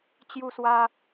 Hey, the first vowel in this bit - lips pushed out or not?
yes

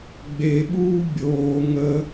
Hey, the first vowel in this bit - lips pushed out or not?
no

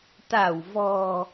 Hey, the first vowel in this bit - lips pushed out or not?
no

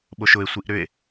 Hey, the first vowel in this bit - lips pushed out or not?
yes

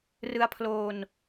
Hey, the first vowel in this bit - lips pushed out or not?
no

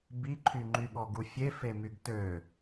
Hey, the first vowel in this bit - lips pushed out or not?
no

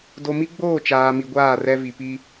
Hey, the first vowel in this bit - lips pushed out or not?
yes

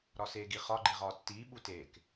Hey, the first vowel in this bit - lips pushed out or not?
yes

